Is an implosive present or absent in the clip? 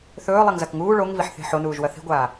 absent